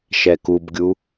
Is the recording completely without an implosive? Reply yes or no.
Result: yes